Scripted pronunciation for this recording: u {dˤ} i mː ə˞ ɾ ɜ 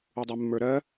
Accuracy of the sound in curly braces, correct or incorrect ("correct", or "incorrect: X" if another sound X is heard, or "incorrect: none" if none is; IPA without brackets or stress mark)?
correct